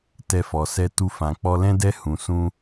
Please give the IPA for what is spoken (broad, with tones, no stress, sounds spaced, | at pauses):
t ɛ˧ f ɔ˨ s ɛ˧ t u˧ f ã˨ k͡p ɔ˧ l ɛ̃˦ d ɛ˦ h ũ˨ s ũ˧